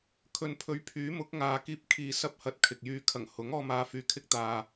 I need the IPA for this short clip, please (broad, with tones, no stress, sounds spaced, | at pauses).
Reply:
kʰ ɵ˨ n pʰ ɵ˨˥ ɥ pʰ yː˨˥ m ʊ˨˥ k̚ ŋ aː˨˧ k iː˧ p̚ kʰ iː˨ s ɐ˧ p̚ h ɐ˨˥ t̚ kʰ ɪ˨ k̚ j yː˧ kʰ ɐ˨˩ ŋ h ʊ˨˥ ŋ ɔː˧ m aː˨ f yː˨ kʰ ɪ˧ k̚ t̪ aː˨